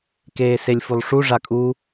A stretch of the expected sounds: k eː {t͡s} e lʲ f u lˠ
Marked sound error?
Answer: yes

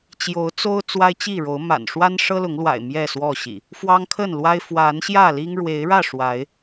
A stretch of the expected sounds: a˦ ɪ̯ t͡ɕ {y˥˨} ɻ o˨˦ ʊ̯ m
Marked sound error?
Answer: yes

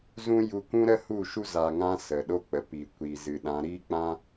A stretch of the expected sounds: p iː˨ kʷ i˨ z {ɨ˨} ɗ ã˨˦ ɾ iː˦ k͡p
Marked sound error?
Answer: no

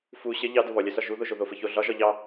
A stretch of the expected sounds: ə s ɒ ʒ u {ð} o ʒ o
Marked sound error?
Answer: no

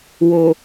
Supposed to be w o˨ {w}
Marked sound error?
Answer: yes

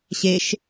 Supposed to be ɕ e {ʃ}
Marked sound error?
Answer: no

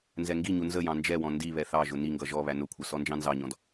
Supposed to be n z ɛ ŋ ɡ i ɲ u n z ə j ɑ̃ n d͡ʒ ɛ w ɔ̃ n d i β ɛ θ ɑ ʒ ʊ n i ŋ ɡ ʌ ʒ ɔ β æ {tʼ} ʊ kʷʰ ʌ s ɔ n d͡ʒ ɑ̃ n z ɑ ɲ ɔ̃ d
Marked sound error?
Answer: yes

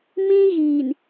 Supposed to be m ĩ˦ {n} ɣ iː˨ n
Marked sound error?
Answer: yes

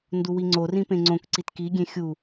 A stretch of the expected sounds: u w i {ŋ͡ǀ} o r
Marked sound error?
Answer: no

